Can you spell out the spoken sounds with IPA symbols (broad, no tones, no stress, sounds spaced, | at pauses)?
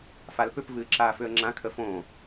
f a l p ʏ p v ɨː ǁ aː f ʏ ə̯ ŋ͡ǁ ã kʰ ə f õː